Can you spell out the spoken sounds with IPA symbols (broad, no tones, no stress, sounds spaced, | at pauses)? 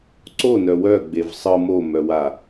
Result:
ǀ o n œ w œ ɡ͡b e v sˤ ɯ m o m œ w a